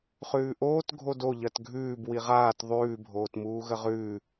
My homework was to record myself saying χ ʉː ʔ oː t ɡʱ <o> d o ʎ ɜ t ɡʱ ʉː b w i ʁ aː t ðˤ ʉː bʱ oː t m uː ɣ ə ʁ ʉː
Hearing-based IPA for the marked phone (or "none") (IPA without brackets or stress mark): o